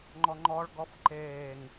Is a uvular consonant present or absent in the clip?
absent